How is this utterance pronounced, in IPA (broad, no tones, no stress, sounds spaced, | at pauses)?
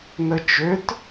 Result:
n ə t͡ʃ ø t